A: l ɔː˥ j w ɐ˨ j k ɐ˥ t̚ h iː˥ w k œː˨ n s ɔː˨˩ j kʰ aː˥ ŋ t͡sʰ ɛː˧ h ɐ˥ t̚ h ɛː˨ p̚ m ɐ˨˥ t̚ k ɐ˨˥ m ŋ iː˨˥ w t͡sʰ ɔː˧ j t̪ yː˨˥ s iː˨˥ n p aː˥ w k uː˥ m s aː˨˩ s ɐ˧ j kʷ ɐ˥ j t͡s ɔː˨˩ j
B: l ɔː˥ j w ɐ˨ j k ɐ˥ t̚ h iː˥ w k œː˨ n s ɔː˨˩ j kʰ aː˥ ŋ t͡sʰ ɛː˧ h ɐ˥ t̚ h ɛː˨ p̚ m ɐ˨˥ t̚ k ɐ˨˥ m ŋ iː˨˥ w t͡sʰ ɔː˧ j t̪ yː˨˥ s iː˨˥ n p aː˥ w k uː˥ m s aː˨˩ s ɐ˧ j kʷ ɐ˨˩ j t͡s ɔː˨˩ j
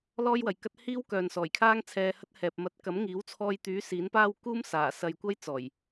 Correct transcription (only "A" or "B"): A